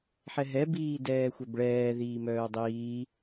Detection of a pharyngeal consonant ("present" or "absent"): present